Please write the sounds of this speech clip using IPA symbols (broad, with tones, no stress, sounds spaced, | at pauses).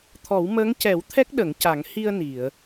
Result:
t̪ʰ ɔ˨˩˦ w m əː˧˥ ŋ c ɛ˨˩˦ w t̪ʰ ɛ˦˥ k̚ ɗ ə˨˩˦ ŋ c a˨˩˦ ŋ h i˧ ə̯ n i˨˩˨ ə̯